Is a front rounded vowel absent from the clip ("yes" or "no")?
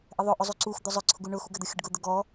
yes